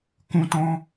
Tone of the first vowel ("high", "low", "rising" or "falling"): high